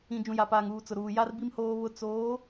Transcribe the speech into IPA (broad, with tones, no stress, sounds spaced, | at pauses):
ĩ˨ d͡ʒ ũ˨ j a˨ p aː˨ ŋ uː˨ t͡s ʊ˨ ɾ uː˨ j a˦ r b i˦ m h oː˦ β ʊ˦ t͡s oː˨˦